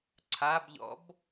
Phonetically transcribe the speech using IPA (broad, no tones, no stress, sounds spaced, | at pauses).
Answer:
ǀʰ a b ʎ ɔ̰ b